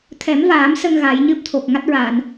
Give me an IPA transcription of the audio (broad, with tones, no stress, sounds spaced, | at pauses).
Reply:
t̪ʰ ɛ˨˩˦ m v aː˨˩˦ m s ə˧ ŋ ɣ a˨˩˦ j ɲ ɨ˦˥ p̚ t̪ʰ o˨˩ k̚ ŋ a˦˥ t̚ ɹ aː˨˩˨ n